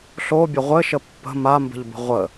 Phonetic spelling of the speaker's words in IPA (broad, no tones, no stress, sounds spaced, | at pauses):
ɬ o bʲ ə ʁʷ ɘ ʃ ə pː ə̤ m a m b ə̤ ʎ b ə̤ ʁʷ ə